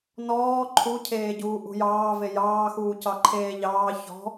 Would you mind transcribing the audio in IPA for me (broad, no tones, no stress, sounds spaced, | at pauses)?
n ɔː ǃʰ u cʰ eː ɟ uː ʔ ṳ j ɑː v e j ɑː x uː c ɑ ǃʰ eː ʎ ɑː ç ɔ̤